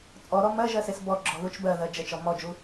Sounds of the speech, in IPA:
t͡sʼ ɔ ɾ ɔ m ɜ ʒ ɜ s e s b ɔ ɡ͡ǁ ɔ ð u t͡ʃ b ɜ ð ɜ d͡ʒ ə t͡ʃ ɔ m ɔ d͡ʒ u

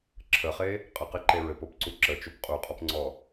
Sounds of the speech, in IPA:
ǁʰ ə χ e | qʼ ə q e ǃ e ɹ ɘ p o p ǀ u ǁ ə t͡ʃ o p qʼ u qʼ ɔ p ŋ͡ǀ ɔ

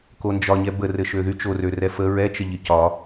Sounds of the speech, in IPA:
k o n d͡ʒ ɒ ɲ ɛ b ə r ɘ ʃ ø ð y t͡ʃ o r ø r ɛ f ə ɹ ɛ t͡ʃ ə ʎ ɘ c ɒ

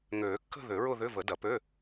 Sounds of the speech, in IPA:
ŋ øː˨˩˦ kː ə̤˥˧ ð ʏ˨˩˦ ɹ ʊ˥˧ ð ʏ˧˥˧ v ə˨˩˦ d ɐ˨˩˦ p ø˧˥˧

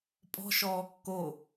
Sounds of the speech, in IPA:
pʼ ɔ̤ ʃ ɔː kː o

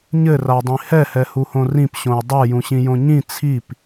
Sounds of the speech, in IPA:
ɲ ɘ r a dˤ ĩ h ɛ h ɛ h u h õ r ĩ p ɕ õ j dˤ ɛ j ũ ɕ ĩ j õ ɲ ĩ t͡sʰ i p

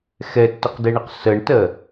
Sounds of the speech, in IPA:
x ɛ tː ə q d ɛ ɳ ə q s ɜ ɳ t ɜ

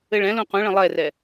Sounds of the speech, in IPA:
ɘ ɭ ɛ̃ l ũ q ũ ɭ ə̃ lˠ ɛ r ɛ

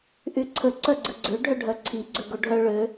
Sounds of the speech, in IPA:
ʔ y ǀʰ ə ǀ œ ɡ͡ǀ ə ɡ͡ǀ ø ɖʱ œ ɖʱ œ ǀʰ i ɡ͡ǀ ø ɡ o ɖʱ œ ɭ ø

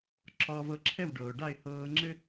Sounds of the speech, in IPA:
ǁ ɒː˧ v ɤ˧ ǁʰ ɛ˥˩ w ɖ ɤː˩ ʊ̯ ɖ a˥˩ ɪ̯ h ɤː˧ ŋ͡ǁ ɘ˥

